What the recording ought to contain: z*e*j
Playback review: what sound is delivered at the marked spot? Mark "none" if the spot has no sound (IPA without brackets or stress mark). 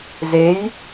e